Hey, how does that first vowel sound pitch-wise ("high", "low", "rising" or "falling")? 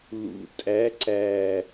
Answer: low